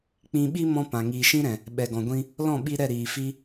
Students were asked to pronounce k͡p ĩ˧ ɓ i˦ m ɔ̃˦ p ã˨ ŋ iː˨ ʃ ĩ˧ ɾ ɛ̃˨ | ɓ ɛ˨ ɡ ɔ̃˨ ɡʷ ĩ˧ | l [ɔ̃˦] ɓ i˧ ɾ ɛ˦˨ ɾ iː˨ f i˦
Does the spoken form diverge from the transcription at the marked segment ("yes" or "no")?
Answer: yes